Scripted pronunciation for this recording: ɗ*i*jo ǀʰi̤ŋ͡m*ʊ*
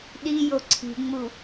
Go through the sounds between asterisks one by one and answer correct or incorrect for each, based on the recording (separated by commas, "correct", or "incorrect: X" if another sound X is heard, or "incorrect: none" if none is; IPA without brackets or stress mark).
correct, incorrect: u